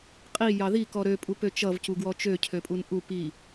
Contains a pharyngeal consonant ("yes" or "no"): no